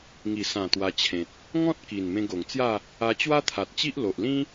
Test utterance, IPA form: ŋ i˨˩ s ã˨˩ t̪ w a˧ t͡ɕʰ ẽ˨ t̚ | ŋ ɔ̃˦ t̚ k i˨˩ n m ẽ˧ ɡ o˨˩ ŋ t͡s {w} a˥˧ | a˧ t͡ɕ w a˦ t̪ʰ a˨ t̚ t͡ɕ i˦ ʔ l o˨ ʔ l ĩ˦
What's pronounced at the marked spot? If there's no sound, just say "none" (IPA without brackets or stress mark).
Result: j